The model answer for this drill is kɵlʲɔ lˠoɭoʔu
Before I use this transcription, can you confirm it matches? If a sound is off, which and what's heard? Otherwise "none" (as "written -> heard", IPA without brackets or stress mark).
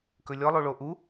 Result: none